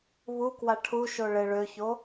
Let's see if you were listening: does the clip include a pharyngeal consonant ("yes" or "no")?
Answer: no